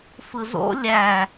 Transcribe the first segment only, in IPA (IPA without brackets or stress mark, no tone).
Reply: f